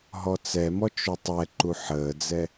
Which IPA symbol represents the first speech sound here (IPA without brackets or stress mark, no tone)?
ɦ